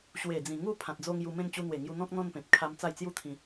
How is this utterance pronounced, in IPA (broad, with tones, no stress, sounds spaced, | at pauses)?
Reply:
ɕ w e˨˩ d͡z ĩ˨˩ ŋ u˥˧ pʰ ã˨ t̚ d͡z o˧ ŋ j u˧ m ẽ˦ n t͡ɕ u˧ n̪ w e˨˩ ŋ j u˧ n̪ ɔ̃˦ k̚ n̪ ɔ̃˦ n p ẽ˨ p̚ kʰ a˧ m t͡s a˥˧ j t͡s j u˥˧ t̪ʰ ĩ˧